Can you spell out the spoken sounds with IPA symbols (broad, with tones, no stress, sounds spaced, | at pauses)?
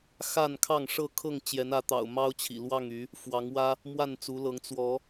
x a˥˨ n kʰ ɑ˥˨ ŋ ʂ ɤ˥˨ kʰ ɤ˥˨ ŋ t͡ɕ j ɛ˨˦ n ä˨˦ t̪ ɑ̰˨˩ ʊ̯ m ɑ˦ ʊ̯ t͡ɕʰ ḭ˨˩ l w ɑ˥˨ ŋ y˨˦ | f w ɑ˨˦ ŋ w ä˦ | m w a˥˨ n t͡s u˨˦ l ɤ˨˦ ŋ t͡s w ɔ˨˦